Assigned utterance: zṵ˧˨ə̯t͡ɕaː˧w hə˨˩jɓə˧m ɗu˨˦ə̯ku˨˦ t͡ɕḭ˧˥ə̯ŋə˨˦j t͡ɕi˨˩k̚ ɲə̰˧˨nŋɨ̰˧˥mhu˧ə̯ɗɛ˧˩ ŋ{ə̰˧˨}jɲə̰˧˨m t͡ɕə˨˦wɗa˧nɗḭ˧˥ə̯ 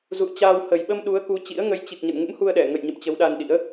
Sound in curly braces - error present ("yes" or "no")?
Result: no